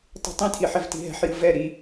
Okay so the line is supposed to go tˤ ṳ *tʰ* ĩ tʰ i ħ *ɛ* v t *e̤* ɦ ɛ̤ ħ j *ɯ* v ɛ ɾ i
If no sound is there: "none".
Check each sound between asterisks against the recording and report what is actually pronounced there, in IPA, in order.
tˤ, ɛ, i̤, ɯ

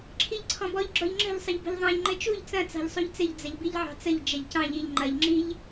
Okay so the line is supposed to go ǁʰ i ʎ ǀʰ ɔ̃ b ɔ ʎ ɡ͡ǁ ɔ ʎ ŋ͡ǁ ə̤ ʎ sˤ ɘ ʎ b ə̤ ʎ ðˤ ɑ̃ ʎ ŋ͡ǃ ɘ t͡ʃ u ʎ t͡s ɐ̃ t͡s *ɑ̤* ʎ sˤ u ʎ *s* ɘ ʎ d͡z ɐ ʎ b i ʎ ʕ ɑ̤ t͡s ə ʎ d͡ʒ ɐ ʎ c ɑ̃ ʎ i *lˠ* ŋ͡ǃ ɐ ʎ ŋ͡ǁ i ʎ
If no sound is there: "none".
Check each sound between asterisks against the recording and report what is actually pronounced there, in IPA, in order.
ɑ̤, t͡s, ʎ

